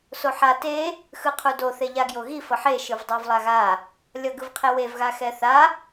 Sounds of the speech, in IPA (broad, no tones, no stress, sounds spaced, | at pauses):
s o ħ a t e | x ɯ qʰ u d o θ e ʎ a ɡ j o ɣ i f ʌ ħ e ʃ ɯ v dˤ o v lˠ a ɣ a | lʲ ʌ ɡ ɯ v qʰ e w e v ɣ a x ɛ θ a